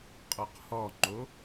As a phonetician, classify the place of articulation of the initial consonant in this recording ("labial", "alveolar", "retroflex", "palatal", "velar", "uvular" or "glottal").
uvular